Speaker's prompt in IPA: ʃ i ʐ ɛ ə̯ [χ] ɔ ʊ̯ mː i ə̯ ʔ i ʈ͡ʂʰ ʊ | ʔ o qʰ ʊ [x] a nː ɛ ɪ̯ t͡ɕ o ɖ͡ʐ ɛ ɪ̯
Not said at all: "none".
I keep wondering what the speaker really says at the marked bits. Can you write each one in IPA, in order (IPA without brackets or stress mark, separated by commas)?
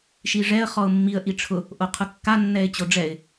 χ, kː